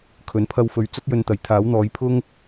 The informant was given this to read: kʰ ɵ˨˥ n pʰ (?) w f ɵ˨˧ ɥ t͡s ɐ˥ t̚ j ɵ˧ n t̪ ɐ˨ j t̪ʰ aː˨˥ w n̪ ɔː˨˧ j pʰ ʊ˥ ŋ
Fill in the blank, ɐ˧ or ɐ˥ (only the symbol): ɐ˧